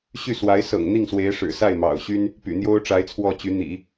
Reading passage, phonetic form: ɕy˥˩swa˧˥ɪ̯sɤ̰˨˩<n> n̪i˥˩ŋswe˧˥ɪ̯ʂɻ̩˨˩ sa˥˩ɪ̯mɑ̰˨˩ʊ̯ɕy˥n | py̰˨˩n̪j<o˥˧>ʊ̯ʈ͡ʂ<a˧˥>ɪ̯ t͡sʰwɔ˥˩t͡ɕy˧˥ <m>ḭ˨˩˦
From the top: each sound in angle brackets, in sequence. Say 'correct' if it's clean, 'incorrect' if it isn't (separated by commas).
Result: incorrect, incorrect, correct, incorrect